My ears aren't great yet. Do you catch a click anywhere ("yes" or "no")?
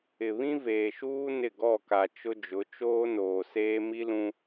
no